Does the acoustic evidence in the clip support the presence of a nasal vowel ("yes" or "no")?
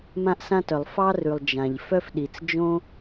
yes